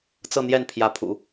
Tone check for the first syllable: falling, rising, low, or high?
falling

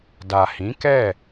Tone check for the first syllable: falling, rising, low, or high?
low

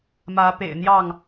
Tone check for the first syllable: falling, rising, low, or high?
rising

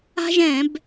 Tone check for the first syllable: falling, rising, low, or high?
high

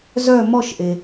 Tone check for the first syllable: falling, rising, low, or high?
falling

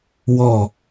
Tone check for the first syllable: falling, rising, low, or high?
falling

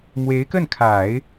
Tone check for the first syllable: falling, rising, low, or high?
rising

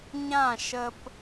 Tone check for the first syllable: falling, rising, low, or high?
falling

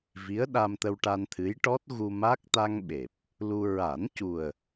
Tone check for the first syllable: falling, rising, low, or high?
rising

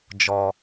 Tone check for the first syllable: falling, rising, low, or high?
high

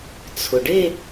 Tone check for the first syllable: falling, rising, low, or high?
low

